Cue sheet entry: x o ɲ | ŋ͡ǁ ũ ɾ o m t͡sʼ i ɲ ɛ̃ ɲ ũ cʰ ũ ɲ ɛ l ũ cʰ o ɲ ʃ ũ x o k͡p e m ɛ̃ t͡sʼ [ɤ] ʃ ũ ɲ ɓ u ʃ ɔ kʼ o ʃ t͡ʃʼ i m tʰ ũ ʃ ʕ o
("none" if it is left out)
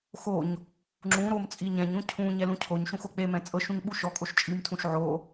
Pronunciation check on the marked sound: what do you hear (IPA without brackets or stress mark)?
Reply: ɤ